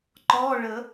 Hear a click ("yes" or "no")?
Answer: yes